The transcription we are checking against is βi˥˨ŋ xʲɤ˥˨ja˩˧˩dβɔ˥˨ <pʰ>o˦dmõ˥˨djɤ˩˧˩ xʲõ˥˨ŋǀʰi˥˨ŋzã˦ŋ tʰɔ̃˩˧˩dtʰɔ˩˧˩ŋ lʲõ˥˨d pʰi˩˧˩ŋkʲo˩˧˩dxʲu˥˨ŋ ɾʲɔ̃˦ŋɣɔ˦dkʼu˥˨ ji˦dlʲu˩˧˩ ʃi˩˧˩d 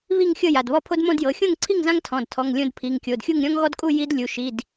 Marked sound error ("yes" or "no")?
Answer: no